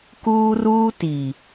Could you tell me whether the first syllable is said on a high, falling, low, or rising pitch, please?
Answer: high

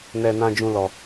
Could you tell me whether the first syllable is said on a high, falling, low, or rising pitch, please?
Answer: low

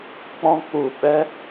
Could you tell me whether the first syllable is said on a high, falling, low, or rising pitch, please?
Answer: high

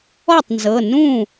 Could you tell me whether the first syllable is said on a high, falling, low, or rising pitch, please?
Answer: falling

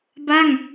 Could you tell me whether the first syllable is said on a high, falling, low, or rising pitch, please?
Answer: falling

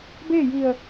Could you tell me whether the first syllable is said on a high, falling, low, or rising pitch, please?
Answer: falling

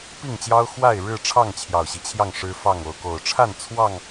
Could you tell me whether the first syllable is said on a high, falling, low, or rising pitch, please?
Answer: falling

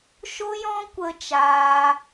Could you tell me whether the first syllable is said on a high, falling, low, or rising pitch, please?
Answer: high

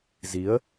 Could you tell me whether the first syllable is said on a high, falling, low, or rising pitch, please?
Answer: rising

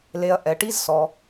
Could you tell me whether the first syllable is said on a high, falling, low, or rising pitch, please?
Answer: low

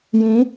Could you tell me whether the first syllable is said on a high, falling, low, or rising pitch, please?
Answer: rising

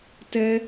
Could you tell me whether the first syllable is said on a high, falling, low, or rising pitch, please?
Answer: high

